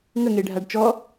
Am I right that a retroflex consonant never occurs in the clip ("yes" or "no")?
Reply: no